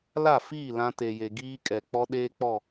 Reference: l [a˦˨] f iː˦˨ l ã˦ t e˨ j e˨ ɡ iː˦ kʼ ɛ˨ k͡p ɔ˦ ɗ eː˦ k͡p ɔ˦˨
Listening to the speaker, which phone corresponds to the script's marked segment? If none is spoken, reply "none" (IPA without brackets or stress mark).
a˦˨